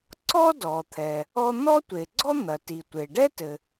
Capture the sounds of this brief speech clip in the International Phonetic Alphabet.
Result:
ǀ ɔ˥ d ɔ˩ t̪ʰ ɛ˩ | ɔ˥ n̪ ɔ˥ tʷ e˩ ɡ͡ǀ ɔ˥ n̪ ɐ˩ t i˩ tʷ e˩ ɖ ɛ˥ t ɘ˩

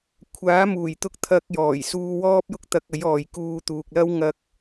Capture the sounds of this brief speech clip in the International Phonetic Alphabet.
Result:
kʷʰ aː˨˥ m uː˨˩ j t̪ ʊ˧ k̚ t̪ʰ ɐ˧ k̚ j ɔː˨˩ j s uː˧ w ɔː˥ p̚ j ʊ˥ k̚ t̪ ɐ˧ k̚ ɐ˨˥ j ɔː˨ j k uː˧ t̪ uː˨ k̚ l ɐ˥ w ŋ ɐ˥ k̚

